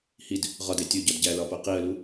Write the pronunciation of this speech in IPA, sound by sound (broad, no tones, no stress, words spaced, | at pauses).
hid | ʁɒde tʲoɟɒd ɟælɒpo qiə̯lu